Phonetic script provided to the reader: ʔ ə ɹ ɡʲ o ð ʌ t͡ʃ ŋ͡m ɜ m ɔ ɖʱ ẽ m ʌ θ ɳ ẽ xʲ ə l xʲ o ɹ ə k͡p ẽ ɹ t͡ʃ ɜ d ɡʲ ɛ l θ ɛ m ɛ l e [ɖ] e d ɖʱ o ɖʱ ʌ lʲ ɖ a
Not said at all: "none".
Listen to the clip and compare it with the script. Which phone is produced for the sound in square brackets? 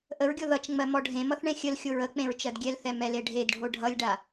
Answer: ɖʱ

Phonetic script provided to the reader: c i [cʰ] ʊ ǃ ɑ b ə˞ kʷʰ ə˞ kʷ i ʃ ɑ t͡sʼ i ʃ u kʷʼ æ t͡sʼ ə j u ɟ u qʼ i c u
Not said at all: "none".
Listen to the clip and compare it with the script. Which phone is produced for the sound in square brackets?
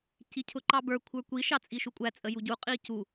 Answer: cʰ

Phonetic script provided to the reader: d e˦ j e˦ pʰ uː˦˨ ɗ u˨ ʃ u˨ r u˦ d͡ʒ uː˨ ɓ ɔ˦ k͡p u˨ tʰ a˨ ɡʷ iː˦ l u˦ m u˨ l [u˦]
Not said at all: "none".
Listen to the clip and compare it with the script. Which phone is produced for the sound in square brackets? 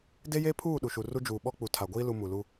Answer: u˦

